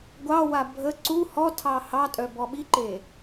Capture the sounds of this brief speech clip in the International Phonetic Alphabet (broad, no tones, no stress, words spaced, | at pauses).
ɡʷɑwa bʱə ǀu hɔtʰɑ hɑtʼœ bɔɓiǃe